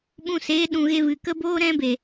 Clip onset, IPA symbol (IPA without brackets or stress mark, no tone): ɓ